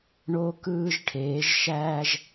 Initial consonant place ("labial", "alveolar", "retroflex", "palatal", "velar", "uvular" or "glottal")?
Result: retroflex